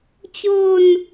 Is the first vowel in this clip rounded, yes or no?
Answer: yes